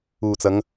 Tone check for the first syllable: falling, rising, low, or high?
low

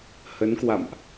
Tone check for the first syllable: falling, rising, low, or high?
rising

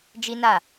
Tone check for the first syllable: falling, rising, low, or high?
high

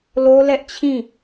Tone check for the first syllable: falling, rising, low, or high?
high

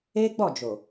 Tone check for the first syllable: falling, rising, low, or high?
high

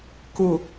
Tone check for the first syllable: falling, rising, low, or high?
low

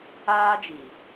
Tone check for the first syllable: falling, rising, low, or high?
high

